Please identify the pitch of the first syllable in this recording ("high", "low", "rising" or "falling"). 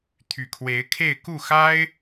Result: low